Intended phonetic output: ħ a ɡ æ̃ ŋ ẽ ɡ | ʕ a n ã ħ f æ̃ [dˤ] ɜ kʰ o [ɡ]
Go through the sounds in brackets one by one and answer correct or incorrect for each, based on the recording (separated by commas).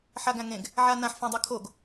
correct, correct